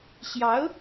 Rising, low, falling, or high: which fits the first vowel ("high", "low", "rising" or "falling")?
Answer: rising